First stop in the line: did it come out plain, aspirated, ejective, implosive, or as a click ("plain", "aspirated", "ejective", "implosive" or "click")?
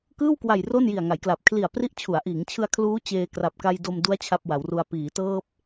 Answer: plain